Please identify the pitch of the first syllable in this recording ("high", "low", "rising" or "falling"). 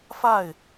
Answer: falling